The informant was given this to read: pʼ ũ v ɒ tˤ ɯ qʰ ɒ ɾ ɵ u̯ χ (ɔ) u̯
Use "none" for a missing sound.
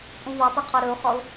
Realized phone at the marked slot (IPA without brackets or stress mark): ɔ